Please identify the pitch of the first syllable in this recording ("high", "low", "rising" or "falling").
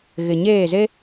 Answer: low